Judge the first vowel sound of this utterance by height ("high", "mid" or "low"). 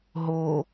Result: mid